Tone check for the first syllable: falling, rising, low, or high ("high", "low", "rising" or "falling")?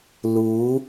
rising